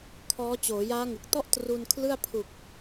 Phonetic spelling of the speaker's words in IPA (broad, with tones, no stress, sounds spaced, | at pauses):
kʰ ɔː˦˥ t͡ɕ oː˩˦ j aː˦˥ ŋ ɯ˨˩ k̚ t ɔ˥˩ ʔ t r u˧ n kʰ l ɯ˥˩ a̯ pʰ u˨˩ k̚